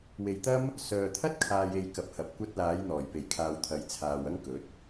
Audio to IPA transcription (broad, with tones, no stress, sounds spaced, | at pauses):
w e˨ j t̪ ɐ˥ m | s œː˨ t̪ʰ ɐ˥ t̚ kʰ aː˨ j e˨ j k ɐ˨ p̚ h ɐ˨ p̚ kʷ ɐ˧ t̚ l aː˨˧ j n̪ ɔː˨˩ j p e˨˩ j kʰ aː˨ w t̪ʰ ɐ˨˧ j t͡sʰ aː˨ w ɐ˥ ŋ k ɵ˨˥ t̚